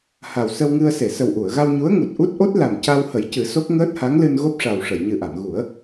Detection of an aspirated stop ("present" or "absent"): absent